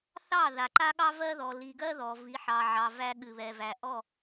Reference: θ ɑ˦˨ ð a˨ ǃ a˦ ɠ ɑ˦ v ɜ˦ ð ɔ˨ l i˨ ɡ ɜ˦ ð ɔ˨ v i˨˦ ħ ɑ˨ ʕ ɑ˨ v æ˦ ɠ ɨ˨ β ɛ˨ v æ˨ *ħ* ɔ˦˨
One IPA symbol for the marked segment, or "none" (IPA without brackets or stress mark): ʔ